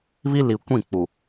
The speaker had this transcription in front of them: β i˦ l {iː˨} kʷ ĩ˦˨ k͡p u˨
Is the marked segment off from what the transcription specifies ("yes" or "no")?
yes